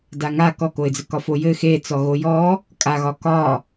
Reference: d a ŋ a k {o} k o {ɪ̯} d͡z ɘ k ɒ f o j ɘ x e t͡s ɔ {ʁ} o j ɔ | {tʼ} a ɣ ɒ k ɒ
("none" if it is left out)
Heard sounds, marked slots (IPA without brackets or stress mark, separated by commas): ɔ, ɪ̯, ɣ, kʼ